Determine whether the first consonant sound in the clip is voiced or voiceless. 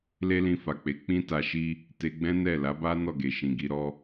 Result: voiced